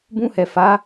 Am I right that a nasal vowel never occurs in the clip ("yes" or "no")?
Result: no